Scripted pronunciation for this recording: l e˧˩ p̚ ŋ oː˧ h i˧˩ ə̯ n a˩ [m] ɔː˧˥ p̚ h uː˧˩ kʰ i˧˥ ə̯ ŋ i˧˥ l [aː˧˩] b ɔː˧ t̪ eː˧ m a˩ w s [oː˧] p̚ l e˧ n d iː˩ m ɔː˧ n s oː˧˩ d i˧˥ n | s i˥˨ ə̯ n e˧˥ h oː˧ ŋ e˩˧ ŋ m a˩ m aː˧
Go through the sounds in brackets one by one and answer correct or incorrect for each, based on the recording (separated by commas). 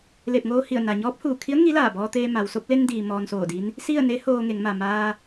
incorrect, correct, incorrect